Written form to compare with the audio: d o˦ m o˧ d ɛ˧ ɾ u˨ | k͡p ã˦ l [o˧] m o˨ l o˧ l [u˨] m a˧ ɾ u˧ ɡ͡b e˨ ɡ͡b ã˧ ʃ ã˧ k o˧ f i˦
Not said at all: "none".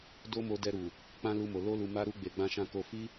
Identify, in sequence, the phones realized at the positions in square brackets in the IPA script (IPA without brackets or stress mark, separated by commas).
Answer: u˧, u˨